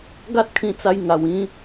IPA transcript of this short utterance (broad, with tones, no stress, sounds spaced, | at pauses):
ɡ a˦ t̚ kʰ ĩ˧ t͡s a˧ j ŋ a˨˩ w ĩ˦